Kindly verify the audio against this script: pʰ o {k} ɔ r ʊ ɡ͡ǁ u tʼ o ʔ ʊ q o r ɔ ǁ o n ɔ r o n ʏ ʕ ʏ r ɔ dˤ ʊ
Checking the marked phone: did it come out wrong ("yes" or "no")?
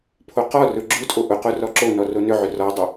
yes